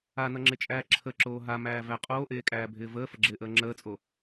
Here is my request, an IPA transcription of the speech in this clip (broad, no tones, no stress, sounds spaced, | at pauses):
a n ʌ ŋ͡ǁ ɪ t͡ʃʼ æː ǁʰ ə ǁ oː ɦ a m æː v æ qʼ oː ʔ eː kʼ æː bʱ ɪː v əː f ə ɡ͡ǁ ɪː ʔ əː ŋ͡ǁ əː t͡sʼ o